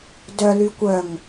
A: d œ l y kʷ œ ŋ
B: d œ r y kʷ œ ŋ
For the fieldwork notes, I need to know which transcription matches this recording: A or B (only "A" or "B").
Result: A